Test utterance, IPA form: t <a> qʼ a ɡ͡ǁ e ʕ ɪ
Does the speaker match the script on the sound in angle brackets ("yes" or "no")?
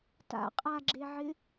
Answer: no